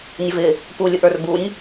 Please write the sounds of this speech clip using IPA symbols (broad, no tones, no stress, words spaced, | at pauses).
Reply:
nʲəvɪ | pulʲʊʔə˞r bunʲ